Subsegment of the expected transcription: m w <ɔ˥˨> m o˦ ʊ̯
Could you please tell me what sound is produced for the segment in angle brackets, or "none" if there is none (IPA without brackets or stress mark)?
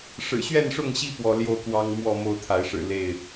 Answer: ɔ˥˨